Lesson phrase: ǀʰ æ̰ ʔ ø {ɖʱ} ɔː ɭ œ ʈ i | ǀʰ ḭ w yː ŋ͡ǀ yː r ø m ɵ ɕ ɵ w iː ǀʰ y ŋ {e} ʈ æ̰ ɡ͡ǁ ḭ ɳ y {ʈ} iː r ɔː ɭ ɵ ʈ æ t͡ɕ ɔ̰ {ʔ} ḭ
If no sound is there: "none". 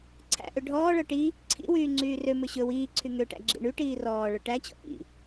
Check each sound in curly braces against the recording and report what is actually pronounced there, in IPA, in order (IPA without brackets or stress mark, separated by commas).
ɖʱ, ø, ʈ, ʔ